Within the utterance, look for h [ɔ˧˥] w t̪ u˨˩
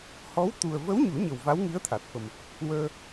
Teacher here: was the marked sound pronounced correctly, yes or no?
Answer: yes